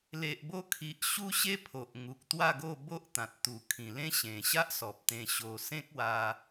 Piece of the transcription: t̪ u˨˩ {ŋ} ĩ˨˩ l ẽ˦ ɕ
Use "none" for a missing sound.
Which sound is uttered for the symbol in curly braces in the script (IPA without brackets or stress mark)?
kʰ